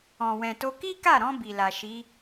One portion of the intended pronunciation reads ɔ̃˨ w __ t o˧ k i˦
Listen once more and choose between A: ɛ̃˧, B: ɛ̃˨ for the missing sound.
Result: B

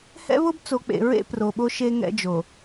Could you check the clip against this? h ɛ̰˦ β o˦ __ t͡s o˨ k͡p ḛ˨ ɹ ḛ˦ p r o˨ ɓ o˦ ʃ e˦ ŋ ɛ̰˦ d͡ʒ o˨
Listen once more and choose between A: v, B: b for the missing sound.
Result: B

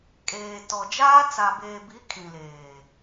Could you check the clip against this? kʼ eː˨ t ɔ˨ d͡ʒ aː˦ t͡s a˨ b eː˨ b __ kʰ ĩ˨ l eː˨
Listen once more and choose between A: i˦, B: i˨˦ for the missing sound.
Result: B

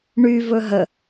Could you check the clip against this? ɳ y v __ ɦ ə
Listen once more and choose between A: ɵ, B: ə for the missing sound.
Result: A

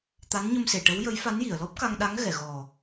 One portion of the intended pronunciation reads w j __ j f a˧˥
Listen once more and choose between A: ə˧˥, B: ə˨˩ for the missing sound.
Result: A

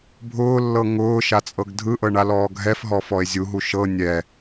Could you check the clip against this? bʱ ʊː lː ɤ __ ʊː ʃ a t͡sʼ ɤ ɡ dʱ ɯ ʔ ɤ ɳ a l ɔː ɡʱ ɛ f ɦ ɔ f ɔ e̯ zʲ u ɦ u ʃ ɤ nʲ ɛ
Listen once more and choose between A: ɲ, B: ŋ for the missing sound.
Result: B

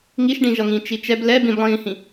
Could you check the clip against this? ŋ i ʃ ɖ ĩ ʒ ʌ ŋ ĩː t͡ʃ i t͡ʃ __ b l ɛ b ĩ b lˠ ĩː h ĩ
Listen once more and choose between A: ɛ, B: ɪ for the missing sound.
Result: A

